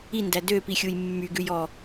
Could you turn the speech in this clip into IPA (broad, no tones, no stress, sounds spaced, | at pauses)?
i n d æ d ø p i xʲ u j mː y ɡ ʉ j ɔ